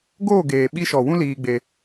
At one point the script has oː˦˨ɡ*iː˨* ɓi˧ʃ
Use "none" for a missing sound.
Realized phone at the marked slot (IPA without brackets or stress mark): eː˨